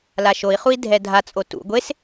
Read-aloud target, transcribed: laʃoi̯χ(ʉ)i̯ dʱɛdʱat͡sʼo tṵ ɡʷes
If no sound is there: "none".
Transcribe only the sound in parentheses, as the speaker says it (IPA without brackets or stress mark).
u